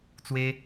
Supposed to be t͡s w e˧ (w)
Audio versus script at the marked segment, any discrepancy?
yes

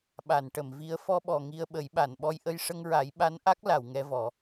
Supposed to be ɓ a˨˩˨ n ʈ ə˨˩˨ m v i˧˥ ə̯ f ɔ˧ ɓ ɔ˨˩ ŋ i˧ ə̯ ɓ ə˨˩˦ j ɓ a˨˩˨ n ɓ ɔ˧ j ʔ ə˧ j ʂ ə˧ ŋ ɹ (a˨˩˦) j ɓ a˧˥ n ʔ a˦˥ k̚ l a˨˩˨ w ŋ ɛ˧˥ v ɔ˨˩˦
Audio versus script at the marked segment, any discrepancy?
no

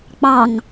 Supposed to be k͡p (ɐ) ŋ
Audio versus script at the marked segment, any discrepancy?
yes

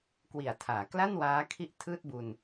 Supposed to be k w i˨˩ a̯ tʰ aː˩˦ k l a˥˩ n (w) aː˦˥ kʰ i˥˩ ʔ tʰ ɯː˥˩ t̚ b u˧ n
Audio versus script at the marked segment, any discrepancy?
no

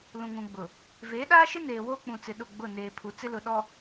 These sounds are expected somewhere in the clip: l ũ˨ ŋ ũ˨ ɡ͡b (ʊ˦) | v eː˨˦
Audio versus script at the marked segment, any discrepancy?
yes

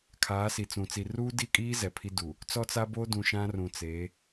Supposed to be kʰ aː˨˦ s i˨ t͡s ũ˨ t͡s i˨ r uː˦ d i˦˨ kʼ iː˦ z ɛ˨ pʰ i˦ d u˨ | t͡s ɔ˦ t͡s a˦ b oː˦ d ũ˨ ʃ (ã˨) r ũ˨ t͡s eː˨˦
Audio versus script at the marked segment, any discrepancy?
yes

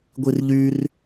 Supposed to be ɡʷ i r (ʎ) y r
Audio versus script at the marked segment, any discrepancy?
no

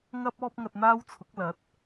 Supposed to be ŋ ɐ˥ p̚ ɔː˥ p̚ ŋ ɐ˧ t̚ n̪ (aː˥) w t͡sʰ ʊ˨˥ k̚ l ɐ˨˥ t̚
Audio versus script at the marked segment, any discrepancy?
no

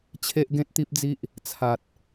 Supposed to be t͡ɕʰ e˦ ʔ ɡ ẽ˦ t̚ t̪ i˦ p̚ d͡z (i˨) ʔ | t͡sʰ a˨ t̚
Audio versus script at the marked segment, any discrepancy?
yes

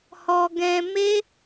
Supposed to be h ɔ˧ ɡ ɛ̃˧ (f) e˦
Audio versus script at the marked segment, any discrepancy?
yes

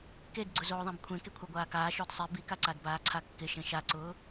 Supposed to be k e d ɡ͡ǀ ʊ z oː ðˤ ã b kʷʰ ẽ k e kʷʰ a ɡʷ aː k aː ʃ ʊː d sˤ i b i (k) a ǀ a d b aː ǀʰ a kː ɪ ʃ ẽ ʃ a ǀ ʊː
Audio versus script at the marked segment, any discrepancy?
no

